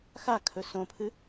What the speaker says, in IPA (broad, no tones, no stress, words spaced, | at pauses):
xakʰɵ sõpʰɨ